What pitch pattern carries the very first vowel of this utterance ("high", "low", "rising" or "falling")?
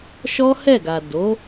high